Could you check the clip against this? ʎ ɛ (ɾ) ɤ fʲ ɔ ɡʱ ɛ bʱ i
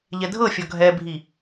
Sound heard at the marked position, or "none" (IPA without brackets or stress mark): dʱ